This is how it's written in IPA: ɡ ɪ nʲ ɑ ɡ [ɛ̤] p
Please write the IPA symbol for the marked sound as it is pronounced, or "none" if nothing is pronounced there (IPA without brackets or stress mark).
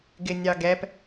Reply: ɛ